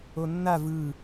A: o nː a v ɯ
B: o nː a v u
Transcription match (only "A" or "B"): A